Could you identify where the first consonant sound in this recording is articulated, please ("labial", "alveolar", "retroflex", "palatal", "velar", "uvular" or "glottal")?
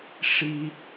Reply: retroflex